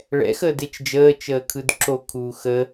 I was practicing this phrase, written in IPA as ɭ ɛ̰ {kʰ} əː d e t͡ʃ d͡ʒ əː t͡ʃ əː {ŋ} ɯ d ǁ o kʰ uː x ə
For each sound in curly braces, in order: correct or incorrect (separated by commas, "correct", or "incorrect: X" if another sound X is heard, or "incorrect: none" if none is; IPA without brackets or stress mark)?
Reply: incorrect: x, incorrect: kʰ